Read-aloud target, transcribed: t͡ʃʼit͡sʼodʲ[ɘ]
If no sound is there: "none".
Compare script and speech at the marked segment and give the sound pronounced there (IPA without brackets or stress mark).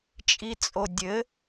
ɘ